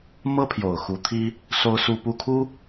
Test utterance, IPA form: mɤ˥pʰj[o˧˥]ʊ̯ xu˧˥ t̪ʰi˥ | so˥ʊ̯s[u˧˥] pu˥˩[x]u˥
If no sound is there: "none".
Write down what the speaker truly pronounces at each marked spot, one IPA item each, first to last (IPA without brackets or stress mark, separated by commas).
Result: o˨˩, u˥˧, kʰ